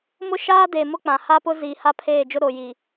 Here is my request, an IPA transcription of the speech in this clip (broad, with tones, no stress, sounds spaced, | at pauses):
m ʊ˦ ʃ aː˦ d e˨ m ʊ˦ k͡p ã˨ h a˦ p ʊ˦ z i˨ h a˦ pʰ eː˦˨ d͡ʒ ʊ˦ ɾ o˨ j i˨